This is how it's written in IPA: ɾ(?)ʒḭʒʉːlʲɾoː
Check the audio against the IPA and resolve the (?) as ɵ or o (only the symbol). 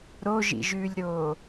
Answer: o